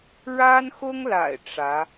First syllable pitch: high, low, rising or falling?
high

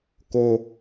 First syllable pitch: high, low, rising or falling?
high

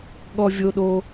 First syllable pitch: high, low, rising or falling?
high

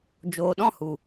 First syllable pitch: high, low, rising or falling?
low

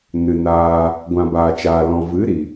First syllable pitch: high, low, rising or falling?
low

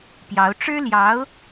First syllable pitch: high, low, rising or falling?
rising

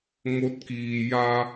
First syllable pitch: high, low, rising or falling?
rising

